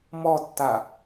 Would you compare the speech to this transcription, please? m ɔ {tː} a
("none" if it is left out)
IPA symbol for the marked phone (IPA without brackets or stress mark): tː